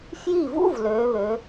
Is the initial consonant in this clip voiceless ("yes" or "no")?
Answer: yes